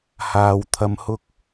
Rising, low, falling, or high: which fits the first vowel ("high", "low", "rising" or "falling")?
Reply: low